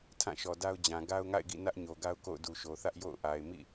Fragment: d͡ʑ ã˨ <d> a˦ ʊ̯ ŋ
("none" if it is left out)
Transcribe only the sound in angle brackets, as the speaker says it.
ɡ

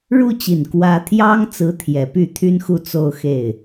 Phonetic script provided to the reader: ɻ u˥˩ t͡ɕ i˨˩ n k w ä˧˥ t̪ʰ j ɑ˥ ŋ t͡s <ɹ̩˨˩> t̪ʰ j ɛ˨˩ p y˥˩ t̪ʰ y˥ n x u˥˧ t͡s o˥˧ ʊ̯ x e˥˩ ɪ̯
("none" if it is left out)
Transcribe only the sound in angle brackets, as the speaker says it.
ɹ̩˧˥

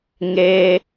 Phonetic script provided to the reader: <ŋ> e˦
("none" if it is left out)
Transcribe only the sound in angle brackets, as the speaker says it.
ŋ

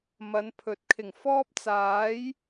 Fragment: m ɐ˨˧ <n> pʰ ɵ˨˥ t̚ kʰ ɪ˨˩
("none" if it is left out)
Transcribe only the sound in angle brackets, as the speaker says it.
n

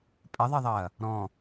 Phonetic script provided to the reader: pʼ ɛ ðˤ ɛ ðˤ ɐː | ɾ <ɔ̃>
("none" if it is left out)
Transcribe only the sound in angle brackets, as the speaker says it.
ɔ̃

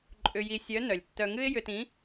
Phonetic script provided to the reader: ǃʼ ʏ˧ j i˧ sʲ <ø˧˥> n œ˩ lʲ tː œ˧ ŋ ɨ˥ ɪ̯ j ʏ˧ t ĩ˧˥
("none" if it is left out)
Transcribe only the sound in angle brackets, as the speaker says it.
œ˧˥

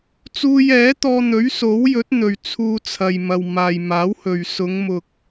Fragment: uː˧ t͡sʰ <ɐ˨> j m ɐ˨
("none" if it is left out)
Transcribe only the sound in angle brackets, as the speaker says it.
ɐ˨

